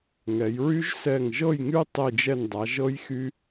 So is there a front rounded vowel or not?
yes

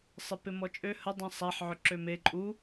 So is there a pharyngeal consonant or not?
yes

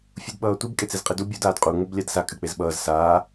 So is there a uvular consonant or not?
yes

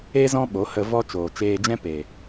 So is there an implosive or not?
yes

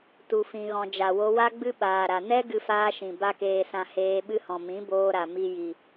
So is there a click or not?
no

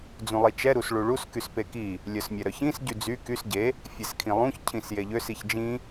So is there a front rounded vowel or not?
yes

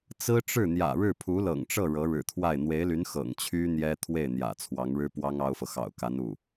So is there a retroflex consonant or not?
yes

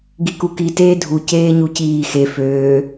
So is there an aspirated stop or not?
no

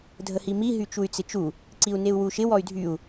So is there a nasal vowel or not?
no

